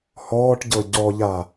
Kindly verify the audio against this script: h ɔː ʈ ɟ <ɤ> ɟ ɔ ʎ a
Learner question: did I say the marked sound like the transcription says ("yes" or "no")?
yes